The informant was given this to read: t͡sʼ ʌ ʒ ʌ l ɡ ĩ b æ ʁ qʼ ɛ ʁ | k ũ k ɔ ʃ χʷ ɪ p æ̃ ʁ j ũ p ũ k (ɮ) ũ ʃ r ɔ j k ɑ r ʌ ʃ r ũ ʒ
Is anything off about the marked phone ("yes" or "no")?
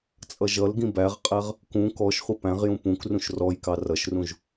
yes